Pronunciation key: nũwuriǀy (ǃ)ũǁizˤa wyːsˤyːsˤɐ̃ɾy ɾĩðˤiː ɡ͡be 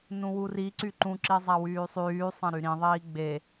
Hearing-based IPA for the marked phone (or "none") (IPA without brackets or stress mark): ǃ